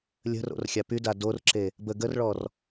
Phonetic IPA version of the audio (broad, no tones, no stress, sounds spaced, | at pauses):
lʲ ə̤ r o̰ r xʲ a p y d a d o r ǁ e | b ə ɡ ə r ɭ ɔ r